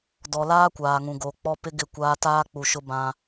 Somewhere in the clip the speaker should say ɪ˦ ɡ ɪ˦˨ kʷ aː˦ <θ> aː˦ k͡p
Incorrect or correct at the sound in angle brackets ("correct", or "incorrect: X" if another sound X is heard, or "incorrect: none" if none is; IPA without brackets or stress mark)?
incorrect: t